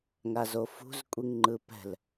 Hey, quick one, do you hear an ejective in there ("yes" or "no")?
yes